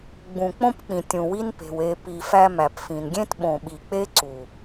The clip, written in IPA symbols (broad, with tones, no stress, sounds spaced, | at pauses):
ɡ͡b ũ˨ k͡p õ˦ p k͡p ĩ˨ tʲ ũ˨ w i˦ n p e̤˨ w e˨ p i˨ f æ˦ m æ˨ p f ĩ˨ n ɡʲ ẽ˦ t ɓ õ˨ ɓ i˨ k͡p e˦ ǀ u˨